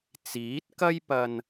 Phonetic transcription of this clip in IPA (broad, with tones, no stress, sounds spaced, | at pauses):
t͡s iː˨˥ t̚ k ɐ˥ j p ɐ˧ n